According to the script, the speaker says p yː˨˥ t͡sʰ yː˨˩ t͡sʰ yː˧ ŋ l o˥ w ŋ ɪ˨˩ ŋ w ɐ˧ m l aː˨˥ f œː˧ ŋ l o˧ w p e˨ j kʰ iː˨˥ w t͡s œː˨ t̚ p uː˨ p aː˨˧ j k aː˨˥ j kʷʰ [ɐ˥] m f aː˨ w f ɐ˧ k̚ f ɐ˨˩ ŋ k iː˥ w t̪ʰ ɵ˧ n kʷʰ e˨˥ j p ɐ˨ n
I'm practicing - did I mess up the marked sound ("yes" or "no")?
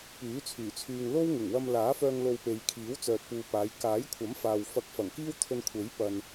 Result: yes